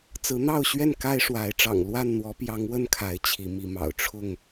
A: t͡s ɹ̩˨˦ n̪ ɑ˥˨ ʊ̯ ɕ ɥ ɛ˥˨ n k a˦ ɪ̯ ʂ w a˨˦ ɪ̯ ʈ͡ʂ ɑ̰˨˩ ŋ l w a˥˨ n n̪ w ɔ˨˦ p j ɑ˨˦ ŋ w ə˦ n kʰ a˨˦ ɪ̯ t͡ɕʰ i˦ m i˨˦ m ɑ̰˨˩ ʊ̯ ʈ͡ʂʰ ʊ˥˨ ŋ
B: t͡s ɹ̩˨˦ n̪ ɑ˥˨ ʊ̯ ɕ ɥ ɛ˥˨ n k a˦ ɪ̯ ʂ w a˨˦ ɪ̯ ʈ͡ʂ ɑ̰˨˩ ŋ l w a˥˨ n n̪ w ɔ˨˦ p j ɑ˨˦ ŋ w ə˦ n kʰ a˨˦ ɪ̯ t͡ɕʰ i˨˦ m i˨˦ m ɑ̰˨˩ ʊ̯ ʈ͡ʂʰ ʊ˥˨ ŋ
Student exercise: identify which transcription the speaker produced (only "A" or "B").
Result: B